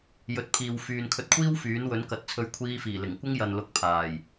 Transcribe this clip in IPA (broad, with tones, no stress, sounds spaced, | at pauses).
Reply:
j ɵ˨˥ t̚ pʰ iː˨ w f yː˨ n kʰ ɵ˧ t̚ kʷʰ iː˥ w f yː˨˥ n w ɵ˨˥ n k ɐ˨ t̚ t͡sʰ ɵ˧ ɥ kʷʰ iː˧ f iː˨˩ l ɪ˨˩ ŋ kʷ ɪ˥ ŋ j ɐ˨ n l ʊ˨˥ k̚ pʰ aː˨˩ j